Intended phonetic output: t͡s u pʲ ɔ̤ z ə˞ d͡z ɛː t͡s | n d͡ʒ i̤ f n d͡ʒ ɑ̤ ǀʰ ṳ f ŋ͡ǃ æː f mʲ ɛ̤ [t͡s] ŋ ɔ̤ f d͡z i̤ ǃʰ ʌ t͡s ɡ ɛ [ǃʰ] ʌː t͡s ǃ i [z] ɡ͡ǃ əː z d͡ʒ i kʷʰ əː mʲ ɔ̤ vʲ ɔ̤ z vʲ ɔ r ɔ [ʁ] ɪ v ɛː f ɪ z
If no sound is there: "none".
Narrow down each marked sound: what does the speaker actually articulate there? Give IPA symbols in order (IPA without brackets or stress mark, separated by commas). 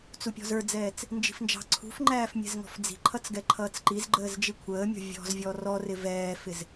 z, ǃʰ, z, r